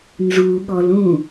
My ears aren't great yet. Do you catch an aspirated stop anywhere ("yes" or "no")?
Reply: no